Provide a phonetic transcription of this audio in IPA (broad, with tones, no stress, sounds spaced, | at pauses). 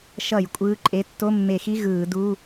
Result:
ʃ ʌ˧˩˧ j kʷʼ ɯː˧˥˧ ǃʼ e˧˥˧ tː o˧˥˧ mː e˧˩˧ x i˧˥˧ ɣ ɯː˧˩˧ d u˧˥˧